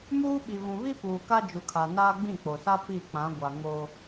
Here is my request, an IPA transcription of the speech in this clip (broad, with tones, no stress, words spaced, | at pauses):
muː˦ɓi˨ βũ˨βi˦puː˨ ka˦d͡ʒu˨kʰa˨naː˦ ɡ͡bĩ˦˨k͡po˨sa˦ pi˦˨k͡pã˨˦ ɡʷa˨ ŋo˦